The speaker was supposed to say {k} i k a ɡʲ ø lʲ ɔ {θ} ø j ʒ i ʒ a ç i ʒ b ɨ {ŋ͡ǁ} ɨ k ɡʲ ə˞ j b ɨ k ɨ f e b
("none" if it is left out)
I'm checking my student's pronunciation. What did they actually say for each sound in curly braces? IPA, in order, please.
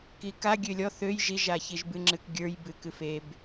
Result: k, θ, ŋ͡ǁ

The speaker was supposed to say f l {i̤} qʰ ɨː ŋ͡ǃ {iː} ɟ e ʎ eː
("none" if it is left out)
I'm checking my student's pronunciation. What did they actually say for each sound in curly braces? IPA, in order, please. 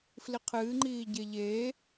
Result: i, iː

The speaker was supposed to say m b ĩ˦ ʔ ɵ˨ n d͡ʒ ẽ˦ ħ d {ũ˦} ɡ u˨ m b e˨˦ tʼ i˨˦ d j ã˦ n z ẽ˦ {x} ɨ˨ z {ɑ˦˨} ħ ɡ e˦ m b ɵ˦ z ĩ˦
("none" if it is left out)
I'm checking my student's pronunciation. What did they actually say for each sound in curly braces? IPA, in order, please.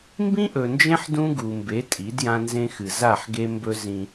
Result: ũ˦, x, a˦˨

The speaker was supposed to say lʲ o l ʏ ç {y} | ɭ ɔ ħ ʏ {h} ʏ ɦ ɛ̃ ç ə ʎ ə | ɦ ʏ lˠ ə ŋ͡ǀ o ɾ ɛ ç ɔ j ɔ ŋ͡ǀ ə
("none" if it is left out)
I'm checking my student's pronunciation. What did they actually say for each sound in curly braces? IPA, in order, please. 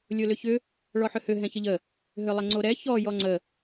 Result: ʏ, h

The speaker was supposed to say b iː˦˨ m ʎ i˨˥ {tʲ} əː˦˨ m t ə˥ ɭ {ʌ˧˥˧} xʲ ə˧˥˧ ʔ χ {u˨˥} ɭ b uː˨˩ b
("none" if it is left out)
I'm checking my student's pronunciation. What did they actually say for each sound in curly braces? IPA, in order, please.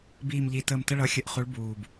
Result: t, ʌ˧˥˧, u˨˥

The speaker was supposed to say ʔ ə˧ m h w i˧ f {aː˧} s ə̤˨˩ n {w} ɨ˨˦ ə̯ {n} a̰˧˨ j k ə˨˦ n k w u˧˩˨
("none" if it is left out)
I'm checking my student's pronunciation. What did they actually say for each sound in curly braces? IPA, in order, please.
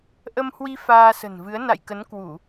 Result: aː˧, v, n

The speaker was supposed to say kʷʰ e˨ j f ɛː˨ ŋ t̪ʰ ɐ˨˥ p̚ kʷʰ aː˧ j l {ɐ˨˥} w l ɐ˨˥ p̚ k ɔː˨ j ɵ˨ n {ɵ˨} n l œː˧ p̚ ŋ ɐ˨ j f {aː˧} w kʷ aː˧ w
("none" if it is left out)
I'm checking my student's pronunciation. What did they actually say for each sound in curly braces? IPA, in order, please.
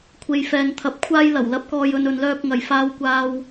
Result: ɐ˨˩, ɵ˨, aː˧

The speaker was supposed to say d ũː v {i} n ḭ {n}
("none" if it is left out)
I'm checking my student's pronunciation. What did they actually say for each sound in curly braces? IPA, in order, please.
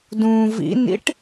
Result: ḭ, ʈ

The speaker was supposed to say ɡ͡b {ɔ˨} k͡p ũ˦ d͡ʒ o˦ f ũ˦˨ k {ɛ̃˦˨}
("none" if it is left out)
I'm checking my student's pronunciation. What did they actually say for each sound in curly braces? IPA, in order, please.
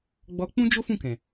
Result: ɔ˧, ɛ̃˨

